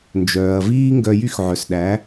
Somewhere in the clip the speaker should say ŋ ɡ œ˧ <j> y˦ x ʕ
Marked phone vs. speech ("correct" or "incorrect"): correct